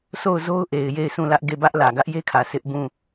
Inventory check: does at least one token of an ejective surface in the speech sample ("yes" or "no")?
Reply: no